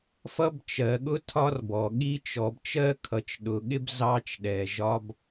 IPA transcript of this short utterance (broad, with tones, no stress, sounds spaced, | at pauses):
f ʌ˧ b t͡ʃ ɜ˩ ɠ ʊ˧ tʰ ɒ˧ r b ɔ˩ ɠ i˧ t͡ʃ ɔ˩ b t͡ʃ ɜ˥ kʰ ʌ˩ t͡ʃ ɗ ʊ˩ ɠ ɪ˥ b z ɑ˧ t͡ʃ ɗ ɛ˩ ʒ ɒ˧ b